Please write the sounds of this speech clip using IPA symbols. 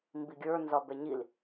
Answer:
m b i ɡʲ ə˞ n z ɒ b ɛ ɲ i l

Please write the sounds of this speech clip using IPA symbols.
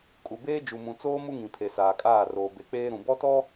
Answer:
kʼ u˨ b eː˦ d͡ʒ u˨ m ũ˨ t͡s oː˦ m u˦ ŋ ĩ˨ pʰ e˨ s aː˨ kʼ aː˦˨ r oː˨ b e˨ k͡p eː˦ ɾ ũ˨ b ɔ˦ t ɔ˦

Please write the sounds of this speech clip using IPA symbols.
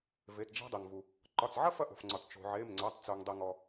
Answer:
v e˩˧˩ t d͡ʒ æ̤˥ dˤ e˩ ŋ v u˩ | ǃ ɒ˩˧˩ t͡s ʕ ɐ˥ f ɐ˥ ʔ o̤˩ f ŋ͡ǀ ɒ˩ t t͡ʃ o̤˩ ʕ e˩˧˩ m ŋ͡ǀ æ˩˧˩ tˤ t͡s o˩ ŋ dˤ i˩ ŋ ɔ˩

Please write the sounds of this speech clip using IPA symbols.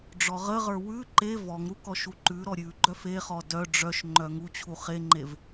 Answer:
ɖ͡ʐ ɔ ʁ ə ʁ ə˞ w ʉ ǃ e v ɔ ŋ ɾ u k ɔ ʃ u ǃ ʉ ɾ ɔ ɾʲ ʉ ɡ͡ǃ œ f e χ ɔ d œ ɖ͡ʐ œ ʃ ŋ͡ǃ œ ŋ u t͡ɕʰ u χ e ŋ͡ǃ e v

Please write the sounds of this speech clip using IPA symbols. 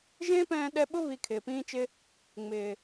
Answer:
ʒ ẽː˦ p ɛ̃ː˧ ɗ ɛ˧ ɓ ʊ˦ β i˧ kʰ ɪː˨ p ĩː˦ t͡ʃ ɪ˦ | ŋ͡m ɪː˨

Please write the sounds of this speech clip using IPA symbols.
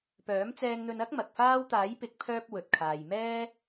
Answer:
p œː˨˥ m t͡s ɛː˧ ŋ n̪ ɵ˧ n ɐ˥ k̚ m ɐ˨ k̚ f aː˥ w t̪ aː˨˥ j p ɪ˨˥ k̚ pʰ œː˧ p̚ w ɵ˨ t̚ kʰ aː˨ j m ɛː˥

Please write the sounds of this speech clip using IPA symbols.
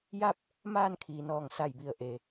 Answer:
j a˥˨ p̚ | m aː˥˨ n kʰ iː˩˧ n ɔː˧˩ ŋ s a˧˩ j b i˧˩ ə̯ ʔ e˩

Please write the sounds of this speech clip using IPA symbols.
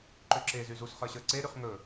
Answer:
ǃ ø ǁ e z y z u s χ ə˞ ɕ ə˞ ǀ e ɾ y χ ŋ ɵ

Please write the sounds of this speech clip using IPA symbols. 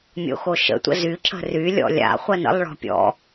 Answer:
mʲ o̰ x o ʃ ə̰ tʷ ə̰ z y cʰ ə̤ r y lʲ ɔ̰ lʲ a̰ χʷ ɜ n ə̰ lˠ ɭ ɔ̤ pʲ ɔ̰

